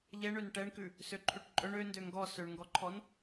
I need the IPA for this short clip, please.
ʎ ɛ ɳ ø n ʈ ɛ ɳ k ʉ | s ø ǃʰ ʉ ʈ ǃʼ ɵ ɳ ø n d ø ŋ ɡ ɔ s ø ɳ ŋ ɡ ɔ ǃʰ ɔ n

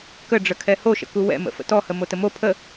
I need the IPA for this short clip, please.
k ə ɖ͡ʐ ə kʰ ɛ h o ʃ ə̰ k u w ɛ̰ m ə̰ f ə̰ t ɔ h ə m o t ə m o pʰ ə

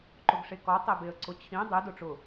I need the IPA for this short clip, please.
ǃ ʊ ɡ ʂ e k ɔ tˤ e b e ə̯ ǀ ʊ t͡ɕʰ ĩ dˤ i d ʊ ʈ͡ʂ ʊ

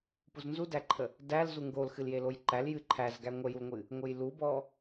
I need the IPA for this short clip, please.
p u z n z u d æ ǃʰ ə | d æ l z u ŋ ɡ o l x ɨ l j e l o j ǃ æ l j ɨ ǃʰ æ z ɡ æ ŋʷ ə j u l ŋʷ ɨ | ŋʷ ɨ j l u b ɔ

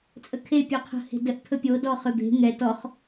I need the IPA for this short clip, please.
t͡sʼ ə kʰ e pʲ ɔ qʰ ə̤ h e̤ d ə ʔ pʰ ɵ pʲ o d ɔ χ ø b e̤ ŋ ɛ t ɔ χ

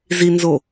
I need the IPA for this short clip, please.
z i n z o

